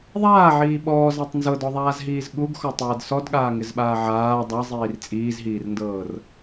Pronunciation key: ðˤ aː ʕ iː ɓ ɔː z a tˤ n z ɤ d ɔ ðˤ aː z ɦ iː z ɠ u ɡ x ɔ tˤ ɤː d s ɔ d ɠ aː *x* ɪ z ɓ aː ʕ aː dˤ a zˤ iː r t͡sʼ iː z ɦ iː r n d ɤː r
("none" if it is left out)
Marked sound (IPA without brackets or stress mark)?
ŋ